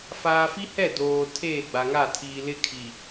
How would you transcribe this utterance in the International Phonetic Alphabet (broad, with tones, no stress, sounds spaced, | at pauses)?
f aː˨ f i˦ h ɛ˦˨ d oː˨ tʰ eː˦˨ ɡ͡b a˨ ŋ a˦˨ tʰ iː˨ l ɪ˦ kʰ i˨